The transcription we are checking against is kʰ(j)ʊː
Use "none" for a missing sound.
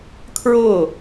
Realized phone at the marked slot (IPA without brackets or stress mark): ɹ